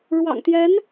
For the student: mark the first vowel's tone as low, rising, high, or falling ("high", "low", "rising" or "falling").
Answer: low